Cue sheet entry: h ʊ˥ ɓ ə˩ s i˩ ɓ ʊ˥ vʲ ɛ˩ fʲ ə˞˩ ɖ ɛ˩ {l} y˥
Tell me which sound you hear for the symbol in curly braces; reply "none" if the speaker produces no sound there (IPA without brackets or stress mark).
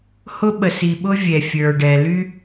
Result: l